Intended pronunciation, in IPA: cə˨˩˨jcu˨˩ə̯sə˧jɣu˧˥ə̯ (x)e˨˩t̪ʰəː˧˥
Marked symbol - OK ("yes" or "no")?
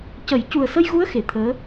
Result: yes